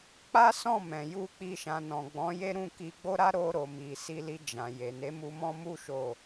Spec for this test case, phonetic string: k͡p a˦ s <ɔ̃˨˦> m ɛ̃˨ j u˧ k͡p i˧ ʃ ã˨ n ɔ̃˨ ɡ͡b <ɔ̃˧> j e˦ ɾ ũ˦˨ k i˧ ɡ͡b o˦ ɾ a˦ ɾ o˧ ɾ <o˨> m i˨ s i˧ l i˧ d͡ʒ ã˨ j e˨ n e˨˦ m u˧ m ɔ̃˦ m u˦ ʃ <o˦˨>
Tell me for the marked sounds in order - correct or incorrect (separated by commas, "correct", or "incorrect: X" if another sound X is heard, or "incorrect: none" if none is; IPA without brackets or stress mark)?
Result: incorrect: ɔ̃˦˨, incorrect: ɔ̃˨˦, correct, correct